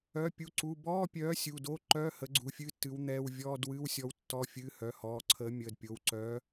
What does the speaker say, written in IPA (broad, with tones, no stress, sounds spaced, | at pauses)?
œ˩˧˩ pʲ u˩˧˩ ǀ u˩˧˩ b ɔː˧˥˧ pʲ œː˨˥ sʲ u˩˧˩ d o˧˥˧ ǃ œ˧˥˧ h ə˨˥ ɡ͡ǀ u˩˧˩ fʲ ɨ˧˥˧ tː ɨ˨˥ w n̪ ɛː˧˥˧ w vʲ ɔː˧˥˧ d w ɨ˧˥˧ w sʲ ɔ˨˥ w tː ɔ˧˥˧ fʲ ɨː˧˥˧ h œ˩˧˩ h ɔː˩˧˩ ǀʰ əː˨˥ mʲ əː˩˧˩ d pʲ o˩˧˩ w ǀ œː˨˥